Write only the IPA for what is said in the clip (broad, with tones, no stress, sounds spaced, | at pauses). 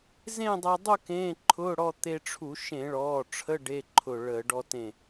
z ẽ˥˧ dˤ əː˧ dˤ u˥˧ k ẽː˧˥˧ ǃʰ ʊː˧˥˧ ɽ ɔ˥˧ t̪ e˧ ʈ͡ʂʰ u˧˩˧ ʃ ẽ˧˩˧ ɭ ɔː˩˧˩ ʈ͡ʂʰ ə˧˥˧ ɖ e˧˥˧ ǃʰ ʊ˧˩ ɭ əː˧˩˧ ɖ ɔ˧ t ẽ˧˩